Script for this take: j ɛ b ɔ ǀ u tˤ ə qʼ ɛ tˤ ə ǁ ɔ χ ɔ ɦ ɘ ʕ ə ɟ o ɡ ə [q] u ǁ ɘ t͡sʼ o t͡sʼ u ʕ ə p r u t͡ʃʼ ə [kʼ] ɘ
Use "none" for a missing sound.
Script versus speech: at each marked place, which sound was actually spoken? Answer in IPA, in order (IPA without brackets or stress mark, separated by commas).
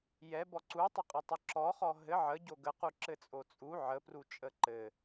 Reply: q, ǃ